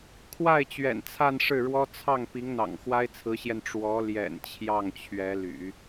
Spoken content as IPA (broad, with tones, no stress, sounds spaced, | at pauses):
kʰ w a˥˩ ɪ̯ t͡ɕ ɥ ɛ̰˨˩ n t͡sʰ a˥˧ n ʂ ɻ̩˥˩ ɻ w ɔ˥ t͡sʰ ɑ˥˩ ŋ p i˧˥ ŋ n̪ ɑ̰˨˩ ŋ x w a˥ ɪ̯ t͡sʰ ɹ̩˧˥ ɕ j ɛ˧ n ʈ͡ʂ w ɔ˧˥ l j ɛ̰˨˩ n t͡ɕʰ j ɑ˥˩ ŋ t͡ɕʰ ɥ ɛ˧˥ l y̰˨˩˦